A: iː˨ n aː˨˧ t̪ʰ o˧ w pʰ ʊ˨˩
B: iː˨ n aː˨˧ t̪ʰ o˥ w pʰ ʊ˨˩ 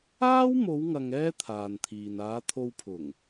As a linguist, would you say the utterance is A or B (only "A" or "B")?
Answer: A